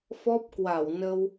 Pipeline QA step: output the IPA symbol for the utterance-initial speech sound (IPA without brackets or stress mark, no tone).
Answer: f